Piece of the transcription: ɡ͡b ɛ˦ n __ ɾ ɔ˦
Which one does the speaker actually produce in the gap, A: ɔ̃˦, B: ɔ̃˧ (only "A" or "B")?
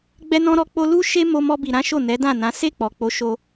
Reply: A